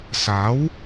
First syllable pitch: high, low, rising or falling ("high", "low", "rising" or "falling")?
rising